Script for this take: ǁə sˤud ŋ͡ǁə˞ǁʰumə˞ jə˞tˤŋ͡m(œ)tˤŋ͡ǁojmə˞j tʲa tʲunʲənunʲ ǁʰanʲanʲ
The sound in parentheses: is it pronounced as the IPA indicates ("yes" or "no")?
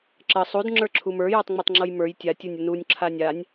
no